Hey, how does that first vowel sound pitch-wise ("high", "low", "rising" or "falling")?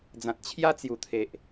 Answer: low